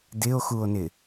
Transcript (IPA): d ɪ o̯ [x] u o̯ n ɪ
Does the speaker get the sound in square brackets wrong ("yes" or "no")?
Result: no